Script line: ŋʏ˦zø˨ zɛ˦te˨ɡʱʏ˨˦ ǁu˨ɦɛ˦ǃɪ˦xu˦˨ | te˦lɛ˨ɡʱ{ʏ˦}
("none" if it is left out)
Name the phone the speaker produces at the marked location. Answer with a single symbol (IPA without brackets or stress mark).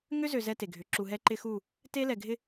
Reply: ɪ˦